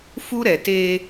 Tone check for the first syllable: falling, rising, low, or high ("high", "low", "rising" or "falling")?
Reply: high